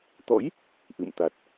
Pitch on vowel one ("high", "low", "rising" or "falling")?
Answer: rising